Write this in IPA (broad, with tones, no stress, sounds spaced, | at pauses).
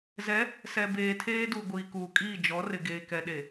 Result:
z ɛ˨˦ | s ɛ˨ b eː˨ tʰ eː˦ d u˨ ɡʷ iː˨ k uː˨ kʼ iː˦˨ d͡ʒ ɔ˨˦ r ɪ˨ ɡ eː˨ k ɛ˨ ɗ e˨